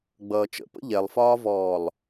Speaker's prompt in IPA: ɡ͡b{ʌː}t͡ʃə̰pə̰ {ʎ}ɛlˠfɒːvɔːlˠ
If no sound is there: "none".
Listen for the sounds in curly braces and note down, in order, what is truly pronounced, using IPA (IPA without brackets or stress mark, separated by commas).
ʌː, ʎ